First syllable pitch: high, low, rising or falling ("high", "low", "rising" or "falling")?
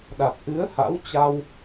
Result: low